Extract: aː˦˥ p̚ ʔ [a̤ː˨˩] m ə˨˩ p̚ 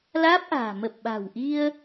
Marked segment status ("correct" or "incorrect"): correct